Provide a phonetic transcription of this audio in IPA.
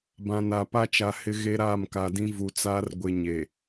b ã˨ n a˨ p a˦ t͡ʃ a˨ h ɪ˨ ɣ e˦ ɾ aː˦˨ m k a˨ d ĩ˦ v u˨ t͡s aː˦ r ɡʷ ɪ˨ ɲ e˨

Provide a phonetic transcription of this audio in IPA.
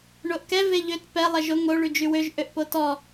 ɳ o ʔ k ɛ v e ʎ ø t p ɛ lˠ ɛ ʒ o ŋ o ɭ y d͡ʒ y w ø ʒ ʔ ø ʔ p o t ɔ

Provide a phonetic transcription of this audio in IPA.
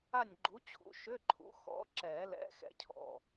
a˦˨ nʲ ɡ͡ǃ u˨˥ t͡ɕʰ ṵ˨˥ ʃ ʏ˧˥˧ ǃʰ ṵ˨˥ x ɔ̰˨˥ ǁ ɛ˨˩˦ l ɛ̰˨˥ x ɛ̰˥ cʰ ɔ̰˦˨

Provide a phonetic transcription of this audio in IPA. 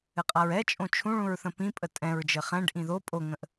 ɘ qʼ a ɹ ɛ t͡ʃʼ õ t͡ʃʰ ũ ɭ ũ ɹ θ ə̃ p ĩ pʼ ə tʼ ɛ̃ ɹ d͡ʒ ɘ χ ɛ̃ ɖ ʔ ĩ ð o pʼ o ŋ ə̃ ʔ

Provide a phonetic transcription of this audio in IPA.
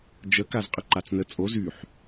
d͡ʒ ə k a z qʼ ə ǃ a t͡s n ə t͡sʼ o z y ħ

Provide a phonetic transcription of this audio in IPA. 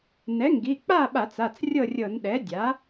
n ɛ˩˥ ŋ ɡ i˩˧˩ k͡p a˥˨ ɓ a˧˩˧ t͡s a˩˧˩ t͡s rʲ ɤ˥˨ rʲ ɤ˧˩˧ n ɗ ɛ˩˥ dʲ a˩˥

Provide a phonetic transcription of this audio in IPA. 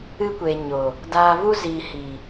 ɨ˧ kʷ eː˨ ɲ o˨ | d aː˨ v u˧ z iː˨ h iː˨

